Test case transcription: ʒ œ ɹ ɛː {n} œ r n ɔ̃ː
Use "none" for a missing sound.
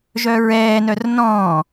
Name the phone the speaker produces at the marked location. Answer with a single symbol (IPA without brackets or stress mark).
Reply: n